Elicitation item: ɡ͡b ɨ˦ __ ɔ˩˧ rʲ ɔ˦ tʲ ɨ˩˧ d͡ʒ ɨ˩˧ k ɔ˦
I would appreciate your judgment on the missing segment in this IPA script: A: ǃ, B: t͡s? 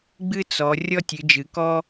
B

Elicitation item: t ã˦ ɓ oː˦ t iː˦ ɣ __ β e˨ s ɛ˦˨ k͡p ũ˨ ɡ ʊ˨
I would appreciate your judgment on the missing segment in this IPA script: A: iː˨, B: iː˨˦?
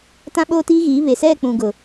B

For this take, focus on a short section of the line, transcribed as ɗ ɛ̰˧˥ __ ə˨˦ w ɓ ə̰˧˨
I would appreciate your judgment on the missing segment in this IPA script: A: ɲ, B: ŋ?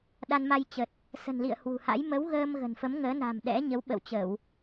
A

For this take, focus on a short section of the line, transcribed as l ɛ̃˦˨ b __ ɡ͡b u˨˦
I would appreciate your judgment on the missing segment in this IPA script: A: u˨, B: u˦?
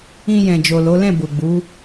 A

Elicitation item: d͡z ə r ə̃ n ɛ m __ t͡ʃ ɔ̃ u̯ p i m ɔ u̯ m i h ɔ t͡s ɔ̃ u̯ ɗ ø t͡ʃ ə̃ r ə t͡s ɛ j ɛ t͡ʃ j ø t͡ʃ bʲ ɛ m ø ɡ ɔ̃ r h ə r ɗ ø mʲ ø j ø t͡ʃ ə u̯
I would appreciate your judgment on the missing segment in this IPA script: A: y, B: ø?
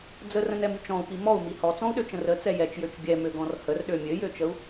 A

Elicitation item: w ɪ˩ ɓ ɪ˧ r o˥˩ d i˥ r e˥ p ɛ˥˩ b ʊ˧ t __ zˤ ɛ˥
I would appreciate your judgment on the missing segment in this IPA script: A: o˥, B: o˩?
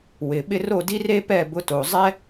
B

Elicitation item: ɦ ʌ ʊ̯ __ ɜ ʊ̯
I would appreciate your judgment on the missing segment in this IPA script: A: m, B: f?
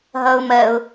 A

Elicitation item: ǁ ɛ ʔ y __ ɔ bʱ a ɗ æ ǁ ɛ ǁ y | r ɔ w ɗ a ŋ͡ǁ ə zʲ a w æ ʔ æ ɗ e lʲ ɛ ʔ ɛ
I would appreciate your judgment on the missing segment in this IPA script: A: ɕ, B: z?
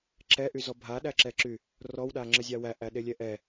B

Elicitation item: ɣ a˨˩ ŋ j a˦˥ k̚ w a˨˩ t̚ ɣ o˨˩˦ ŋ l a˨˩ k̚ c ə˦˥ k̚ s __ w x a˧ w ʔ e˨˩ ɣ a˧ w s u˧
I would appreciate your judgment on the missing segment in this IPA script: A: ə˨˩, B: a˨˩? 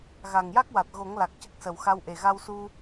A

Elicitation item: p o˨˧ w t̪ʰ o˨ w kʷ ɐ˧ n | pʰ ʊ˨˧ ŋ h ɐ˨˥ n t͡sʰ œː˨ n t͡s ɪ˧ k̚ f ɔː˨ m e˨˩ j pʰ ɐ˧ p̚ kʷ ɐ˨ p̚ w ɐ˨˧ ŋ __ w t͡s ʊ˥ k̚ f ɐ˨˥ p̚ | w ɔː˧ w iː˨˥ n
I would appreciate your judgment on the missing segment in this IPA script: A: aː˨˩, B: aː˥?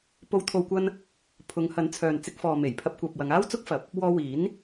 B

